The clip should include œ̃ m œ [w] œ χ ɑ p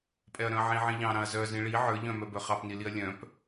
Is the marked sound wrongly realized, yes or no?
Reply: yes